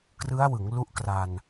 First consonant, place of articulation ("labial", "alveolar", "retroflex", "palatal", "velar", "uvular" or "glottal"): velar